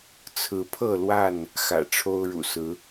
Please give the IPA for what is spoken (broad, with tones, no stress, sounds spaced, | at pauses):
t͡sʰ ɹ̩˨˦ pʰ ɤ˥˨ l w a˥˨ n | x ä̰˨˩ ʈ͡ʂʰ o˦ ʊ̯ ɻ ṵ˨˩ s ɹ̩˨˦